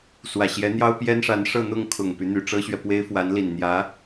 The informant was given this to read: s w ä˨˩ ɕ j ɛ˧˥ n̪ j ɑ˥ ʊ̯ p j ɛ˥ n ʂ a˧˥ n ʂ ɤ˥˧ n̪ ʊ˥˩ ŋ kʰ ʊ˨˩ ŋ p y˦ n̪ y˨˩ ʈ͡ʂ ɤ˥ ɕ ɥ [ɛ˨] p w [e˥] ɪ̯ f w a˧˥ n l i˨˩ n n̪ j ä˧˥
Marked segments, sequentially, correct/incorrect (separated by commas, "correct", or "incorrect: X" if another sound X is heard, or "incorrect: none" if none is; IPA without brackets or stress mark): correct, correct